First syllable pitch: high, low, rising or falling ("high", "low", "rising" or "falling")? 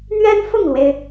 high